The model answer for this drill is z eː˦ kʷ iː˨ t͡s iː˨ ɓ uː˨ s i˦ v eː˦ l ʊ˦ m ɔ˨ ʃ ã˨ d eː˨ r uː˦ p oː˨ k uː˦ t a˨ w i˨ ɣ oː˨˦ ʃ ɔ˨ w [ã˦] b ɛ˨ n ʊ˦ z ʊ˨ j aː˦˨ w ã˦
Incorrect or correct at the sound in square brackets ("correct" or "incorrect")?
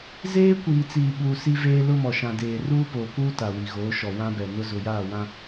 correct